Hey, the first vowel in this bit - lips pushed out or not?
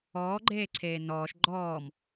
yes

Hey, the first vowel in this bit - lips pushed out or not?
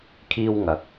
no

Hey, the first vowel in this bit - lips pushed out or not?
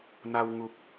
no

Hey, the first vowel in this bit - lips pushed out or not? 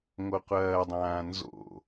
yes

